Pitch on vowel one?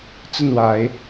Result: falling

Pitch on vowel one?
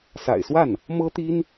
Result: low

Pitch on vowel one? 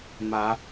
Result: rising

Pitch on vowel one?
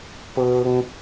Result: high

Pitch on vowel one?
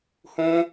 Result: high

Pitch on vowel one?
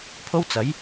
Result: high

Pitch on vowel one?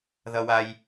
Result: low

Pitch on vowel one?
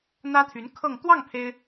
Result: high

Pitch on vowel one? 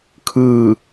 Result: falling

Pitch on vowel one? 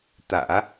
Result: low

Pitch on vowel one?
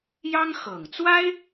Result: high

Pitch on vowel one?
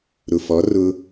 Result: low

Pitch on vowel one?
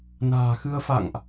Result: low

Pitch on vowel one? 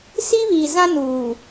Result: high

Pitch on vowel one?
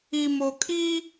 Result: low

